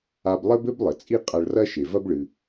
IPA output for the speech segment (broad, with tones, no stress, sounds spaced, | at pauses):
a˧ b lˠ ɘ˥ b ɘ˥ b lˠ ɘ˩ t͡sʼ i˥ qʼ a˧ ɭ r ɐ˥ ʃ e˩ v ɐ˥ b ɭ ɨ˩